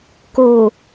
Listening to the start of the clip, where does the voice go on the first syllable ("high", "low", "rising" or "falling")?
low